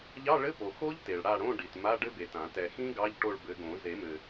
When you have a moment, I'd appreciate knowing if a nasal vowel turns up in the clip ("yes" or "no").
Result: yes